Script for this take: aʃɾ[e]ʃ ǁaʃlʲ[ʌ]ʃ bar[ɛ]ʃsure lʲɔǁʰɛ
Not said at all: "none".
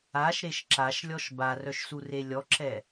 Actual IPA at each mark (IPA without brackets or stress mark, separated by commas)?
e, ɔ, œ